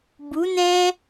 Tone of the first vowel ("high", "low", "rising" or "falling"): rising